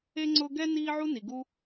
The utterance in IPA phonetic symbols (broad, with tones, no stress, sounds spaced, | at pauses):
e˥ ŋ͡ǀ ʊː˥ ɡ ɛ˥ n iː˦ ʕ u˦ n i˨ ɡ u˦